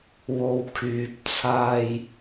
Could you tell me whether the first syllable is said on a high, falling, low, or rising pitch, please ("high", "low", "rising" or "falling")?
low